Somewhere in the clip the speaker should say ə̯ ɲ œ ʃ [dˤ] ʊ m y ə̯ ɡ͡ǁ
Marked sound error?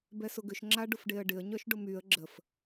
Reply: yes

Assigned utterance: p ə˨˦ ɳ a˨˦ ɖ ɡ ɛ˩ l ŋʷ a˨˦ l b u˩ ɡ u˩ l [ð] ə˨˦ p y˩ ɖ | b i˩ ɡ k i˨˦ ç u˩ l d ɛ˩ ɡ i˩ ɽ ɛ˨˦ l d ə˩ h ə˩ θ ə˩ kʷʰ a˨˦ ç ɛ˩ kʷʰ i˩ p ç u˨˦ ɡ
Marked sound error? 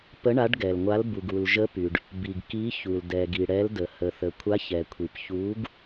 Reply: yes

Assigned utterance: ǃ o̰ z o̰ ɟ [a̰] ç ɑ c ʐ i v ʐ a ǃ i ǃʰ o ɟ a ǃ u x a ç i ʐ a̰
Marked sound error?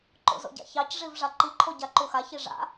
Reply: no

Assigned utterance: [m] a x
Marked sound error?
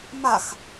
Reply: no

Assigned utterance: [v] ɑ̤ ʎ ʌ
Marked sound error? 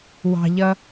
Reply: yes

